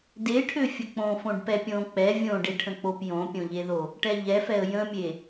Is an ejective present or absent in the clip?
absent